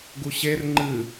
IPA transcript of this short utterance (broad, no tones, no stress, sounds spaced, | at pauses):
ɡ u ɕ e r ŋ͡ǃ ɨ